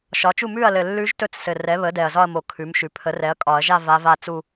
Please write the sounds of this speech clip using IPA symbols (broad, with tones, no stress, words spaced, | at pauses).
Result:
ʃɒ˩˥t͡ʃu˥˩ mʉ˥˩ɐ̯lɘ˨˩ lːʉ˧˥ʒtɵ˧˥t͡ssɘ˨˩ rɛ˩˥βə˩˥ dɛ˨˩ɐ̯zɒ˥˧ɐ̯mo˨˩ kʰʉ˩˥mʃʉ˩˥ pʰə˩˥rɛ˩˥ɐ̯kʼɒ˨˩˦ɐ̯ʒa˥˧ va˧˥va˥˧ t͡su˥˧